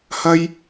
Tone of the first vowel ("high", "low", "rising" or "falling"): high